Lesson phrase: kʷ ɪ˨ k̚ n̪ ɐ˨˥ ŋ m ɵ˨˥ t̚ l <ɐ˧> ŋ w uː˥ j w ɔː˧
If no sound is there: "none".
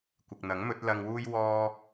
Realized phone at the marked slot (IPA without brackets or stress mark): ɐ˧